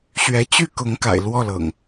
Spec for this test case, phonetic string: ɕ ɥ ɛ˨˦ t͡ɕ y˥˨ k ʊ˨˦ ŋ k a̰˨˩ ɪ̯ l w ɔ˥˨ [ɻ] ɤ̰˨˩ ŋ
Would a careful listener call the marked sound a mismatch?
yes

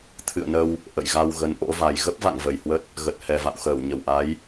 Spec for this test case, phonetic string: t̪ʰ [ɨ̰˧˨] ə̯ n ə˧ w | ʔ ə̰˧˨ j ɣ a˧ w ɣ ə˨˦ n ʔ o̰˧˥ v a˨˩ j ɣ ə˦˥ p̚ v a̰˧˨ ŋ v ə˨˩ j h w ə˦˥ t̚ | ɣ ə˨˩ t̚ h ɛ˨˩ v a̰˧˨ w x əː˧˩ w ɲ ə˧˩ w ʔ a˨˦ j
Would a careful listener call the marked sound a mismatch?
no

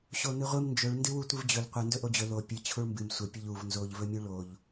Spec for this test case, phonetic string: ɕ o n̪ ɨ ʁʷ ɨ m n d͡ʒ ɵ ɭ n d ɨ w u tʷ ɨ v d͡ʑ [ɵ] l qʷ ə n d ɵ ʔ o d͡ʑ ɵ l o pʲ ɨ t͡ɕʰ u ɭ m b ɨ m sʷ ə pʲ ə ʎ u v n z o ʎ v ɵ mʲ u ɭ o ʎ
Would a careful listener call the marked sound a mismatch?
no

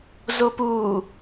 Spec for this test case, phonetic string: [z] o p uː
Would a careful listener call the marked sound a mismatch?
no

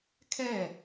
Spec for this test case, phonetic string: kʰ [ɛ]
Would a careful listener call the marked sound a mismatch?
no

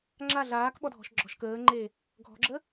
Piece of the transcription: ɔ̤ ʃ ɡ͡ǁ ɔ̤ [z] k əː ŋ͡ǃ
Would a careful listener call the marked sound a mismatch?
yes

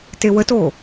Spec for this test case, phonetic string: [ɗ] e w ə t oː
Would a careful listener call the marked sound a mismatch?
yes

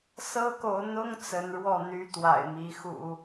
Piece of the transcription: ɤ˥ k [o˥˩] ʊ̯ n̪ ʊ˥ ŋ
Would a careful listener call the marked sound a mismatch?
yes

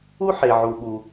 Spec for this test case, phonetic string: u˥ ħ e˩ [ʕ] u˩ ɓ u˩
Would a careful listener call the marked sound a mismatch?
no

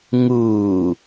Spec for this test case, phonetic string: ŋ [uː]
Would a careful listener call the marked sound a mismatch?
no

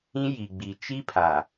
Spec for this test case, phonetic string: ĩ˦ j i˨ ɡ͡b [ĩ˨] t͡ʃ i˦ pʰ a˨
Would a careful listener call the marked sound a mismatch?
yes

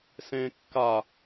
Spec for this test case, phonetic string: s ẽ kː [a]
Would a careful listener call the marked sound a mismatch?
no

